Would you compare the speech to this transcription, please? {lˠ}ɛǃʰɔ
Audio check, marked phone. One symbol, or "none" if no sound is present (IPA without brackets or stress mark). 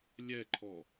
lʲ